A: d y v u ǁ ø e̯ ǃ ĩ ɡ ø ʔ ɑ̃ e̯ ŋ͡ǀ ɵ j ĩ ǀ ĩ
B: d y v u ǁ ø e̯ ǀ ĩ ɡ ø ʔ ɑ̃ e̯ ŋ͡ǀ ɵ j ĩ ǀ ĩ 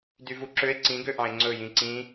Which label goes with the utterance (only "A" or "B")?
B